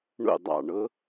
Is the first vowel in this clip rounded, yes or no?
yes